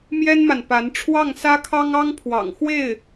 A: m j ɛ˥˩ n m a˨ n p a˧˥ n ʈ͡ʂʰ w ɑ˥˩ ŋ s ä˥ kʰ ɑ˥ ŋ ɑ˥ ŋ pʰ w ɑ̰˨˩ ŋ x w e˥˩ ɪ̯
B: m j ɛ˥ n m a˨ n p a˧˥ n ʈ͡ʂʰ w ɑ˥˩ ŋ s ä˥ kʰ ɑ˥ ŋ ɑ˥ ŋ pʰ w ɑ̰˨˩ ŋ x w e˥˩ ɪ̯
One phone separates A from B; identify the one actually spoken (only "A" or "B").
B